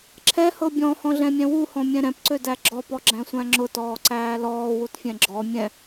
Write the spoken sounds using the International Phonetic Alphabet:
ǁʰ ɛ h ɤ bʲ ɔ̃ h ɔ̃ ɮ ɛ̃ mʲ ɛ̃ w u h ɔ̃ mʲ ɛ̃ ɾ ɛ̃ p ǀ ø d æ ɡ͡ǁ ɔ p ɔ ɡ͡ǁ æ̃ sʷ æ̃ ŋ͡ǁ ʊ t ɔː ǀ æː l ɔː w u t fʲ ɛ̃ ɡ͡ǁ ɔ mʲ ɛ̃

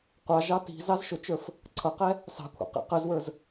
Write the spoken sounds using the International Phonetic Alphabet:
qʷ ɑ ʒ ɑ t i̤ z ɑ z ʃ ʊ t͡ʃ ə˞ f | ǀʰ ʌ q ɛ | s ɑ̤ kʷʰ ɛ̰ q ḭ q ə z w ə˞ z

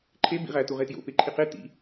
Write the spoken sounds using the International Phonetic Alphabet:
ǃʰ e b ḭ ʁ æ t u ʁ e t j o̰ p e ǃʰ i q e t ḭ

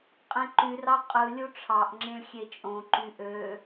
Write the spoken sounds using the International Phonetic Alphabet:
qʼ ẽ ǃ y r ɑ qʼ ɯ lʲ u ʈ͡ʂʰ ɑ ʔ ŋ͡ǁ ĩ ɭ xʲ e t͡ʃʼ õ ǃ y ʔ ø

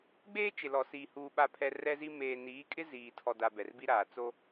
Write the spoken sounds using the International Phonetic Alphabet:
ɡ͡b eː˦ t͡ʃ ɪ˨ l ɔ˨ s iː˨ h uː˨ ɓ a˨ pʰ ɛ˨ r ɛ˦ z i˦ m eː˨ n iː˨˦ kʼ ɪ˦ z iː˨ tʰ ɔ˨ d a˨ b ɛ˨ r b i˦ ɾ aː˨ t͡s o˦

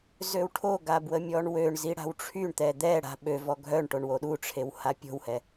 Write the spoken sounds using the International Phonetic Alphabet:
z ø w ʈʰ o ɡ a b w ə mʲ ɔ ɳ w ø ɳ z i ɽ a̤ w ʈ͡ʂʰ y ɳ t̪ ɛ d̪ ɛ ɽ a̤ ɓ ø v ɔ ɡʱ œ ɳ ʈ o ɳ w o ɗ u ʈ͡ʂʰ e w h a pʲ o̤ w h ɛ

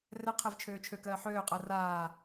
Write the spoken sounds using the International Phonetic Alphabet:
r ɛ qʰ e v t͡ʃʰ øː t͡ʃʰ ø k ɜː ħ øː qʼ ɜ r aː

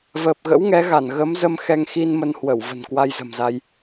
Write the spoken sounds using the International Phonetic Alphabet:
v əː˨˩ p̚ ɣ ə̰˧˥ w ŋ ɛ˨˦ ɣ a˧˩ n ɣ ə˨˦ m z ə˧ m x ɛ˧ ŋ x i˧ n m ə˧ n h w ə˧˩ w v ə̤˨˩ n k w a˧ j z ə̤˨˩ m z a˧ j

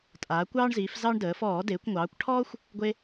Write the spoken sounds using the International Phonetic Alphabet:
tʼ aː˩˧ kʷ ɑː˦ ɳ z iː˩˧ f z ɑ˦ ɳ d əː˩˧ f ɔː˧˩˧ d eː˩˧ kʷ ŋʷ ɑː˩˧ kʷ ʈʰ ɔː˦ xʷ | ɡʷ e˦

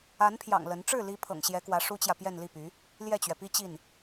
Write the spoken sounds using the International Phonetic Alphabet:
a˧˥ n pʰ j ɑ̰˨˩ ŋ l ə˧˥ n ʈ͡ʂ ɻ̩˥˩ l i˧˥ pʰ ɤ̰˨˩ ŋ ɕ j ɛ˧˥ k w ä˧˥ ʂ u˥ t͡ɕ j ä˨ p j ɛ˥˧ n l i˥˩ p y˧˥ | l j ɛ˥˩ t͡ɕ ɥ ɛ˩ p i˥ t͡ɕ i˥˩ n

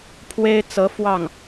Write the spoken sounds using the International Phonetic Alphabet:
pʰ w e˥ ɪ̯ t͡s ɤ˧˥ f w ɑ˥˩ ŋ

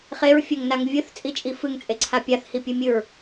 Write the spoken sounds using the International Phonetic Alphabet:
χ e ɹ fʲ ɘ ŋ n a ŋ vʲ ɨ θ t͡sʼ i t͡ʃʼ i f ɨ ŋ t͡sʼ e ǀʰ a pʲ a θ h i pʲ ɨ mʲ ɨ ɹ

